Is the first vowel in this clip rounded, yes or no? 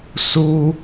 yes